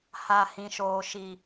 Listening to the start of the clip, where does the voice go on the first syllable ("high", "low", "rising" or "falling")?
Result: low